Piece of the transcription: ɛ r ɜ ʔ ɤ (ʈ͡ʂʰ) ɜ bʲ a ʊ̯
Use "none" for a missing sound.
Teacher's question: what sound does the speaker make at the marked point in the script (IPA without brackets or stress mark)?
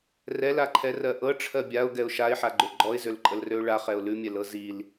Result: ʈ͡ʂʰ